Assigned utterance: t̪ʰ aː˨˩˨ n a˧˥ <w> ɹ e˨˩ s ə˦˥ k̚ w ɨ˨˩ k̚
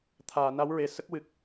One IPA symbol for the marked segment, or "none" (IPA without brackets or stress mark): w